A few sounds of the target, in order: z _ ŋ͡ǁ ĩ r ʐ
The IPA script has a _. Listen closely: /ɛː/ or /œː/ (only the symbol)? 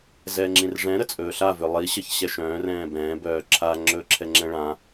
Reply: ɛː